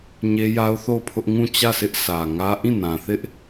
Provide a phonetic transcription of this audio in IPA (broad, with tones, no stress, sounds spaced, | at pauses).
ɲ e˦ j a˦ ʊ̯ θ o˦˨ ʊ̯ pʰ ʊ˦ ʔ ŋ ũ˦˨ t͡ɕ ä˦˨ s ɪ˦ ʔ sʰ ä˨ ŋ ä˦ ʔ ĩ˦˨ n ã˨ θ ɪ˦ ʔ